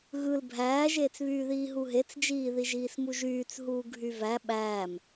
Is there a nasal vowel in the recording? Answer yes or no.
no